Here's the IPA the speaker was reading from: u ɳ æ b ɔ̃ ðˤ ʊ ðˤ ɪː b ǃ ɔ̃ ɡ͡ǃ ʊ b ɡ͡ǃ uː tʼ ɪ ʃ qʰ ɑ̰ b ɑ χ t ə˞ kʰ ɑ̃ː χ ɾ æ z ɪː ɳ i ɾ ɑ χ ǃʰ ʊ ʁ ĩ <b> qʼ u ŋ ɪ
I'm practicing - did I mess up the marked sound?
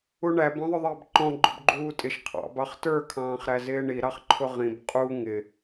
no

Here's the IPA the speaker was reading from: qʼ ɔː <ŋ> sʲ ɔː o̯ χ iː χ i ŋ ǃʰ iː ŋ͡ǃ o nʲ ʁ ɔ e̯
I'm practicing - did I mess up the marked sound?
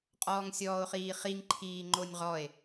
no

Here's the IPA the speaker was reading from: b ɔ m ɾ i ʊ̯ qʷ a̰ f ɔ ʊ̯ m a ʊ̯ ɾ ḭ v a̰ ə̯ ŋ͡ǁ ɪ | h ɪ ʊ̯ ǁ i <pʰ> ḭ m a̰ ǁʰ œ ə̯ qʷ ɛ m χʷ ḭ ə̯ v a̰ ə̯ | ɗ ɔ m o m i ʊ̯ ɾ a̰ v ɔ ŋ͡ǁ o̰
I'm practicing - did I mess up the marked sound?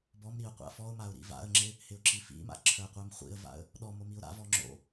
yes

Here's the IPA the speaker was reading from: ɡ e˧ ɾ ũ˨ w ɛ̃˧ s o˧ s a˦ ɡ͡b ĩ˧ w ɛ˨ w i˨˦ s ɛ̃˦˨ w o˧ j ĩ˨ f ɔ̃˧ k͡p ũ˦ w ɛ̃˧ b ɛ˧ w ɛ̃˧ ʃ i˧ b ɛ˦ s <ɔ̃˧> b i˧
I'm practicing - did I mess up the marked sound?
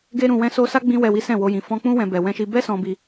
no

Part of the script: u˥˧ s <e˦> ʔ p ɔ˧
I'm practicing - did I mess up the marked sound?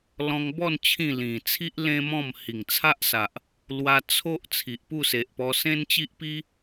yes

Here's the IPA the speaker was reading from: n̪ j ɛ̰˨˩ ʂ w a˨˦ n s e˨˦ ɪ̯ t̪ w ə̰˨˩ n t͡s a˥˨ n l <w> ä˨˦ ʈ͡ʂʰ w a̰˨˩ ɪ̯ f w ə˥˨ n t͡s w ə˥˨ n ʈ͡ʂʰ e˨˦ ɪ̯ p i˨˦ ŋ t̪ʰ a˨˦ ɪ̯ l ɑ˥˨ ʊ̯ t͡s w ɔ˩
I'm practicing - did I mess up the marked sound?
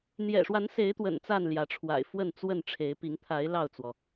yes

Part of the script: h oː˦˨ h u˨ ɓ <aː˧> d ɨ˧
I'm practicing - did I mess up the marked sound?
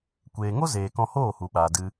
yes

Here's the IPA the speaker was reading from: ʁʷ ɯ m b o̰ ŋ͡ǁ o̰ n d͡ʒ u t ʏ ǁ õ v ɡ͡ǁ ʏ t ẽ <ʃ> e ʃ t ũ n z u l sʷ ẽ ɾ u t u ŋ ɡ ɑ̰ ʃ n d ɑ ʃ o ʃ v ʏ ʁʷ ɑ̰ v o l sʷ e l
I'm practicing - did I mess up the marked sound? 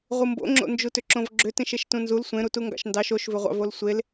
no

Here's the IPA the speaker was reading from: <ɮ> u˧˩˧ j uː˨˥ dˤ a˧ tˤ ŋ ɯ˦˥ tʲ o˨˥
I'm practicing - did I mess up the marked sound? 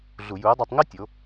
no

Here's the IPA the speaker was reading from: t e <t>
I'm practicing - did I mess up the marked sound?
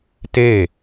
yes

